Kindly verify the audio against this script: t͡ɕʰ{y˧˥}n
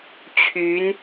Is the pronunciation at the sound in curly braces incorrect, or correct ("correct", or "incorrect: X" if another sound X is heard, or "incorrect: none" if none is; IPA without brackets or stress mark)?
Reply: correct